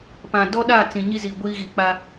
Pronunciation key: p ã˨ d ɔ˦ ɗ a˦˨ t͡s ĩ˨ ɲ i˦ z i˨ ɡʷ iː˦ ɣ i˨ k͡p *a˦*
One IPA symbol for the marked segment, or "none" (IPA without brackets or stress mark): a˦